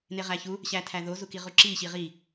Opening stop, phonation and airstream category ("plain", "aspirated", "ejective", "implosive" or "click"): aspirated